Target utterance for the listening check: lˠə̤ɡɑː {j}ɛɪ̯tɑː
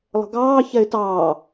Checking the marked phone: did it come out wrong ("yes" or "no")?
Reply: yes